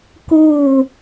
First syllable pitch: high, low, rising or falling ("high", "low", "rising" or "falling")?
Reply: falling